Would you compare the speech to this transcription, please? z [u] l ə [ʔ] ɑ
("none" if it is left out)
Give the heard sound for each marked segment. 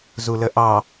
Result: u, ʔ

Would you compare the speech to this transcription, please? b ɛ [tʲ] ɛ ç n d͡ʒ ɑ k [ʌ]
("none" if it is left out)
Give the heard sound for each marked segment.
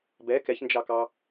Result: k, ɑ

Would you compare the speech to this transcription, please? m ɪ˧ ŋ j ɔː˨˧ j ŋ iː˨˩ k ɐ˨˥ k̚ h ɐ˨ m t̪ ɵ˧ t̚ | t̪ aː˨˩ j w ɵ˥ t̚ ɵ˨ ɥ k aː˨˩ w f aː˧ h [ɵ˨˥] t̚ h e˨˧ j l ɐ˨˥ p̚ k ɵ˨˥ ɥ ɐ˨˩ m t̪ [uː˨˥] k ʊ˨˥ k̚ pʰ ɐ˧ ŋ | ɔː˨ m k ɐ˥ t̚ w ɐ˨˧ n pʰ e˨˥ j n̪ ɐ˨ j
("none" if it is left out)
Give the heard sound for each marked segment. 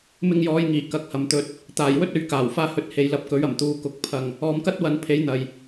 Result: ɵ˨˥, uː˨˥

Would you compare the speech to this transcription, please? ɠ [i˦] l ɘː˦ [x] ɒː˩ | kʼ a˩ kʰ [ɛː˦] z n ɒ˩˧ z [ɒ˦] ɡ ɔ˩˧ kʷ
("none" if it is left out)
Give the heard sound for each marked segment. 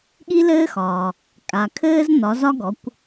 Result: i˦, x, ɘː˦, ɒ˦

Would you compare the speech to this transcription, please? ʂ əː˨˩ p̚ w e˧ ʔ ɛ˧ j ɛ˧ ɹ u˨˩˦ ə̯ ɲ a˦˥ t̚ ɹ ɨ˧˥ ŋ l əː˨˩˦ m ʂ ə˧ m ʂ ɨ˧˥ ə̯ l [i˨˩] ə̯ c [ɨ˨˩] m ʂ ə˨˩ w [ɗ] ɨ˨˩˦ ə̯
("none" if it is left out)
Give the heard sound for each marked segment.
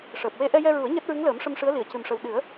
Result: i˨˩˨, ɨ˨˩, ɗ

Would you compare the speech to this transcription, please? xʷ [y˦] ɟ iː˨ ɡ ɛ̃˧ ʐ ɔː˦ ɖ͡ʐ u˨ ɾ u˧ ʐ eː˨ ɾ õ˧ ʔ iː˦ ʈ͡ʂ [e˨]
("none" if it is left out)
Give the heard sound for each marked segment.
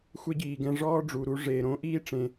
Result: e˦, ẽ˨

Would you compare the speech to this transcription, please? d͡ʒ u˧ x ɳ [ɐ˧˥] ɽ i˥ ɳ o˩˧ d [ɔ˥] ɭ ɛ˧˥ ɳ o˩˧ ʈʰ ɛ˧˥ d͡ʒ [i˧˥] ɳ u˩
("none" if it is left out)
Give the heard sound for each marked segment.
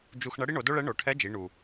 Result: ɐ˧˥, o˥, i˩˧

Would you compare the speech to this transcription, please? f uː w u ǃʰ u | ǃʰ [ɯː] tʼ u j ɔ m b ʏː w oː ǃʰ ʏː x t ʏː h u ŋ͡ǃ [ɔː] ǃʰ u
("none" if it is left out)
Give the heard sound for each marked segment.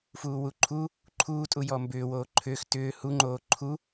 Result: uː, oː

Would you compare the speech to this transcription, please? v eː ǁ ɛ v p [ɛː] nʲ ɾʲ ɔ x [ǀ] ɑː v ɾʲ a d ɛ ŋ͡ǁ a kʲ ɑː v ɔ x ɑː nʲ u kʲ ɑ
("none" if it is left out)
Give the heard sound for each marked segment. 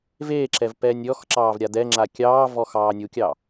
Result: ɛː, ǁ

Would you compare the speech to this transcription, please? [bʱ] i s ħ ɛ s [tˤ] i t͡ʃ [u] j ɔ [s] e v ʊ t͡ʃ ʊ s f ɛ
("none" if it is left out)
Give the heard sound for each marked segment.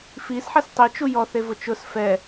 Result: f, tˤ, u, θ

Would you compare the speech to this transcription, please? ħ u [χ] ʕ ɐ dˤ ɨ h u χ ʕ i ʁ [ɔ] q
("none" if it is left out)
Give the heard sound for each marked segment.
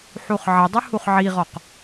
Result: χ, ɔ

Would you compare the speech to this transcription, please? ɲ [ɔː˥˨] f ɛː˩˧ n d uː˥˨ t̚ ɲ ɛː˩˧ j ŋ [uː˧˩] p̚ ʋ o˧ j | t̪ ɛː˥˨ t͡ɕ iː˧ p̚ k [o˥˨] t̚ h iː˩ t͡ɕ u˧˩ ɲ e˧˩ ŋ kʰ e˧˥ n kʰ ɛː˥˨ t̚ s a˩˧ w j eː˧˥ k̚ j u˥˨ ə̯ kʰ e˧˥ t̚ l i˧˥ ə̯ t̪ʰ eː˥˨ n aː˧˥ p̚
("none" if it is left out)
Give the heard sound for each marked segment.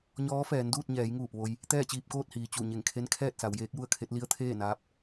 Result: ɔː˧˥, uː˧˩, oː˥˨

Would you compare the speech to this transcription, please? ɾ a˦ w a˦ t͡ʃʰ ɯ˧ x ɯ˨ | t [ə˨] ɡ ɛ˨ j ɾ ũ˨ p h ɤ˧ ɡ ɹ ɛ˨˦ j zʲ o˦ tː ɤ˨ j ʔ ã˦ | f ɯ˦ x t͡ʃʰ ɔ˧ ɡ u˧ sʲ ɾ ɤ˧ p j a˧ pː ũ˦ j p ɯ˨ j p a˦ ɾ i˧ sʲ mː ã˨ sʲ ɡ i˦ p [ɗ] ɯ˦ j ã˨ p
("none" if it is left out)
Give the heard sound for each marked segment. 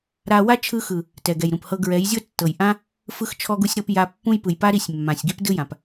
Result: ɛ˨, d

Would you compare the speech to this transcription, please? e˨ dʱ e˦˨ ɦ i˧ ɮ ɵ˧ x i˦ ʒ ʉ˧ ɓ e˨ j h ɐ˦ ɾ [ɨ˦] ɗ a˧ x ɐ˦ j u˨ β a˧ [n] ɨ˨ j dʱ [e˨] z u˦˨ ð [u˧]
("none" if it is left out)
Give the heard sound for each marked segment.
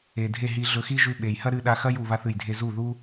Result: ɨ˧, θ, e˧, u˦

